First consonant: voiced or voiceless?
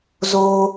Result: voiced